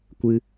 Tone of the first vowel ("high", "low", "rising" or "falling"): high